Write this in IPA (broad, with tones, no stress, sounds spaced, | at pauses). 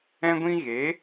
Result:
ɛ̃˦ ɡʷ ĩ˦ ɣ e˨˦